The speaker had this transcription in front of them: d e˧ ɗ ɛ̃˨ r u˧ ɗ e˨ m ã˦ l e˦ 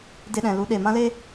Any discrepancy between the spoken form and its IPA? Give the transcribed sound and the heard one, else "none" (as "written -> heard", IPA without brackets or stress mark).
r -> l